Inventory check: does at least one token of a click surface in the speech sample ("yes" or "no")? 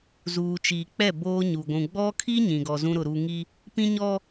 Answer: no